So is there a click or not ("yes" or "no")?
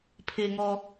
no